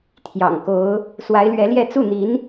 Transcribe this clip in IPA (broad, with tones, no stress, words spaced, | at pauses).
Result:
t̪ʰjɑ̰˨˩ŋko˧˥ʊ̯ | swa˧˥ɪ̯lɥɛ˧˥ljɛ˥˧ t͡su˥˩n̪i˧˥n